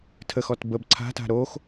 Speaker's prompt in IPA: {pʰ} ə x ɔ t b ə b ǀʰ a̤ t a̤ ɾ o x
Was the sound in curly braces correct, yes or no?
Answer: no